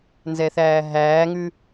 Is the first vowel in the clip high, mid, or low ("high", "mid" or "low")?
mid